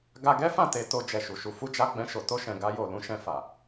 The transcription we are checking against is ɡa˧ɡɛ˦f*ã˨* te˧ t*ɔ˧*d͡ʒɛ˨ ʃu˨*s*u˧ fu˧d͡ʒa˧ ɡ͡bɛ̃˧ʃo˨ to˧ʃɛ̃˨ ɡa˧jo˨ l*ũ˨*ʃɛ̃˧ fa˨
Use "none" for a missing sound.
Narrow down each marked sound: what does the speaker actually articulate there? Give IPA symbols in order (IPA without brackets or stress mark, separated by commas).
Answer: ã˦˨, o˧, ʃ, ũ˨˦